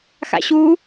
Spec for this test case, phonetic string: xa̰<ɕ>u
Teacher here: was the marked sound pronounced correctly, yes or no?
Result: yes